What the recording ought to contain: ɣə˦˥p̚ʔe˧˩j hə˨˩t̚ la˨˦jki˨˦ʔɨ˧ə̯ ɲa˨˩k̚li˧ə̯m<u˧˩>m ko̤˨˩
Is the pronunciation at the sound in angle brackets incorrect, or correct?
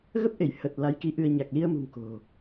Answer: incorrect